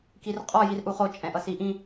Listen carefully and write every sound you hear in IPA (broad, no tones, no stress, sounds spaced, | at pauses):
k i r qʼ ɔ j i r ʔ u χ o t͡ʃʼ ɛ̃ ʔ ʌ s i ʔ ĩ